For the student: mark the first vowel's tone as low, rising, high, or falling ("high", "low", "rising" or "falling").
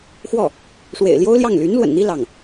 falling